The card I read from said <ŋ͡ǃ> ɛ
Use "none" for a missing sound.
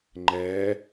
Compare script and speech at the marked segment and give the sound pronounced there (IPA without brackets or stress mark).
ŋ͡ǃ